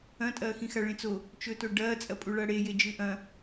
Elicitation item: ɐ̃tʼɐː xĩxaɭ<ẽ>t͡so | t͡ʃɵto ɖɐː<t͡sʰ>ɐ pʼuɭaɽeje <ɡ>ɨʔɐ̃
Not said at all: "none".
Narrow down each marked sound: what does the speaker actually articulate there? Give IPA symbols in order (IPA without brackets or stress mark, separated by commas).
ẽ, t͡sʼ, d͡ʒ